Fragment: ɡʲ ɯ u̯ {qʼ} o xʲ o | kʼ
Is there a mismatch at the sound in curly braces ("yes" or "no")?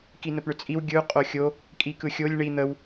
no